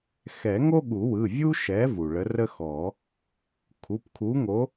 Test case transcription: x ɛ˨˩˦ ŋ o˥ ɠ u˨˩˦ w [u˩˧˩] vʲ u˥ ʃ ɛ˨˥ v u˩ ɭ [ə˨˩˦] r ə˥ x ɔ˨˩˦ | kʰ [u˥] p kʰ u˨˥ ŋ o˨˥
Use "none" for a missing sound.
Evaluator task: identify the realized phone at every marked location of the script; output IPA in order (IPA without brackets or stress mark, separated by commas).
ɯ˩˧˩, ə˨˥, u˩˧˩